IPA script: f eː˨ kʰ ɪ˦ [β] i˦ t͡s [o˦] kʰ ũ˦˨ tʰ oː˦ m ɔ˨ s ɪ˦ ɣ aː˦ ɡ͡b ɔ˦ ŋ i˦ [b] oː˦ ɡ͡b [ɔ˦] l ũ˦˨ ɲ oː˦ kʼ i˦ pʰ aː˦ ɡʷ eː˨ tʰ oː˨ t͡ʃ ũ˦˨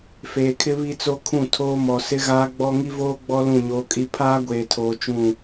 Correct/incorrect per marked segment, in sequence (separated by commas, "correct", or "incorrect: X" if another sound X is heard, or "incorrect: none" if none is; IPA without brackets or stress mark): correct, correct, incorrect: v, correct